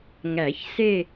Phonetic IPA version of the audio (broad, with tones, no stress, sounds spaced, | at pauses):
ŋ æ˨˩˦ ç s e˦˨